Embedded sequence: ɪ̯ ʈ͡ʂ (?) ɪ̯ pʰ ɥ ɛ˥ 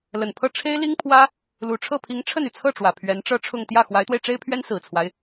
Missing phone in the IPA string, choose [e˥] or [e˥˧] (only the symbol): e˥